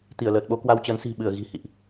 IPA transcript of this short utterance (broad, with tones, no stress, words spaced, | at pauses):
t̪i˧˩ə̯ləː˨˩t̚ɓo˧ kwa˧wt͡ɕə˨˦nsi̤˨˩ ɓɨ˧˩ə̯ ɣi̤˨˩hḭ˧˨ʔ